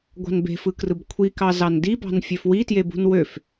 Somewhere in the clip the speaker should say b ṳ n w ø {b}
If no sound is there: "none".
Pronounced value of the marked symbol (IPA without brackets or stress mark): f